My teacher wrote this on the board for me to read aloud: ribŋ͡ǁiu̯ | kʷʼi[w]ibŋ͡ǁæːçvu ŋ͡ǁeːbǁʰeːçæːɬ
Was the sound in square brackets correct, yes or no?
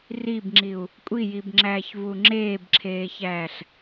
no